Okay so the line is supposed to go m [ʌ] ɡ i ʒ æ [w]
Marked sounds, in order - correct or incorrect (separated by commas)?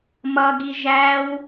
correct, correct